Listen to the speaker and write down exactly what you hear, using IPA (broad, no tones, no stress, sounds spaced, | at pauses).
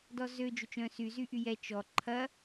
d ɔ z ø d͡ʒ ʏ t͡ʃ œ̃ s y z y ʔ y j ɛ t͡ʃ ɔ ǃʰ ɐ